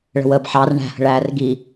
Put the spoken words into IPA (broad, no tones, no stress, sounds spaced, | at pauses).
ɭ ə̤ w əː b ħ ɑ r ɳ æ̤ h ə̤ ɭ æː r ɡ i